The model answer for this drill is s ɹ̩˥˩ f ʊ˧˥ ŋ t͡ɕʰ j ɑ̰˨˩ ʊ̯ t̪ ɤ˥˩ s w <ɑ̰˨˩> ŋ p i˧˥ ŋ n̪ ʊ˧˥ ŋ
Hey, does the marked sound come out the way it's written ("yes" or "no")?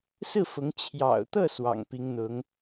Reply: yes